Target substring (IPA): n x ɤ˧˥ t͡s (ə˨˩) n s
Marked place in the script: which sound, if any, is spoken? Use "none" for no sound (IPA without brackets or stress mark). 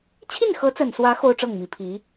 ə˨˩